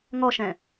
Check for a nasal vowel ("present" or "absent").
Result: present